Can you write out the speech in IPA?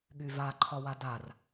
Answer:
ɠyvaǃʰɒwa dar

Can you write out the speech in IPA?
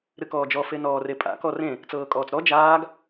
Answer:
ɾɨkɔːd͡ʒɔ fenɔːrepʼa̰ kɔrẽ | t͡sɤːkʼɔːt͡sɾɔ d͡ʒaːɡ

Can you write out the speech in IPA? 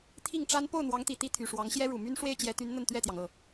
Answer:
t̪ʰi˥˩ŋʈ͡ʂa˥n po˥˩ʊ̯n̪wɑ˧˥ŋt̪i˨˩ t̪i˥t̪ʰy˨˩ʂwɑ˧˥ŋ ɕjɛ˥ɻu˨˩my˥n ʂwe˥˩ɪ̯t͡ɕjɛ˧˥t̪y˧˥n n̪ə˥˧nt̪ɥɛ˥˩t̪jɑ˩ŋ ɤ˥˩

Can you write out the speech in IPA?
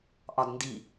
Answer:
ʔɒdndi

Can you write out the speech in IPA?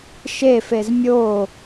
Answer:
ʃefez mʲo

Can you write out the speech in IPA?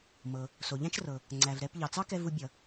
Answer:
mɤ˩ | so˩ʎæ̃˥t͡ʃrɤ˩ | ŋ͡ǀæ˩vɾɛ˧p ʎɑ˩t͡sɑ˥kɛ˧ vu˧bʲʌ˩

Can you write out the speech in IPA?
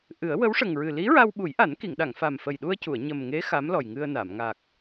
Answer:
ʔɨ˨˩˦ə̯ wə˧˥wʂə˨˩ŋɹɨ˨˩ li˧˥ɹa˧w ɓu˨˩˦jʔa˨˩˦nki˨˩˨ŋɗa˨˩˨ŋ fa˨˩mfə˨˩jɗu˧ə̯cu˨˩˨ə̯ ɲə˨˩mŋe˧˥ xa˧˥mlɔ˨˩jŋɨ˧ə̯na˨˩˨m ŋa˨˩k̚

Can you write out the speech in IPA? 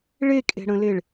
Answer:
ɭekʼe̤ɽə̃leɭ

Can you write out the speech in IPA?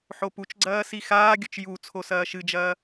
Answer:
ħoput͡ʃɡ͡ǀɐː sixaːɡʲɵt͡ʃ ju t͡sʰosɐːʃɨd͡ʒɐː

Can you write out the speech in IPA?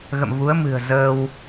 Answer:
ɣə̰˧˨mvu˨˦ə̯ mɨ̤˨˩ə̯ zəː˧w

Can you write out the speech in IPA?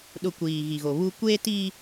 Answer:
ɗʊ˨ kʷiː˨ɣi˨ɣo˨ βu˦ kʷeː˦tiː˦

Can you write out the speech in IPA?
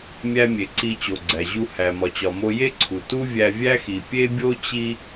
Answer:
mʲæ˧mʲe˩ ǀi˧ t͡ɕo˩ ɡ͡ǀæ˩ʑu˧ hæ˩mɒ˩t͡ɕɒ˩ mo˧je˥ǀʰu˩ tu˥ vʲæ˧vʲæ˥xi˩ pʲe˥bʲo˥ t͡ɕi˥

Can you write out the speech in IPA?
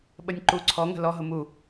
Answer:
ɓənʲǃu ǀʰɔŋə̤ lɔɦʊ mu

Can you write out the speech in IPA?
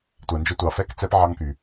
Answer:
tʷæ˨nd͡ʒɵ˦ tʷɑ˨fɛ˦˨kt͡sɛ˦p ʕɑ˦ŋky˨

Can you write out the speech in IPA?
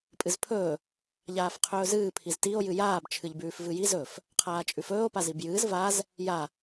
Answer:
pʼɨzpʰɵː | ʎaːfqʰɵːzɨː pʰiztio̯ jɨjaːb t͡ʃʰɨʎbʉːfvɨji zɵf | qʰaːt͡ʃʼʉfɵːo̯ pazibjɨːz vaz | ja

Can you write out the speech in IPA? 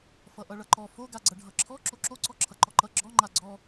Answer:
fʌʔʌɭʌǃɔ foɡaɡ͡ǀʌ ɖʱʌǁʰɔ ǁoǁoǀɔǁʰʌ ǃɔǃʌ ɡ͡ǁɔ ŋ͡ǃaɡ͡ǀɔ

